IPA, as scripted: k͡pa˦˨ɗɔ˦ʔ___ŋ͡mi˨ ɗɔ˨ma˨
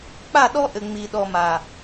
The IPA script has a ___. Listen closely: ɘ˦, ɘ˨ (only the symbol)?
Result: ɘ˨